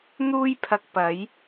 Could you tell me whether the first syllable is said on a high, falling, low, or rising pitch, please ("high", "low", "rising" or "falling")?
high